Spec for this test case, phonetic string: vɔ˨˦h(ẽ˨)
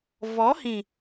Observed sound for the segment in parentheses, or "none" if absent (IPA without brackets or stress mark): ĩ˨